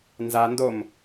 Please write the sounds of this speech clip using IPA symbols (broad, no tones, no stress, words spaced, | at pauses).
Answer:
nza ndom